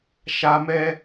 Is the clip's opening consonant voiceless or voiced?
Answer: voiceless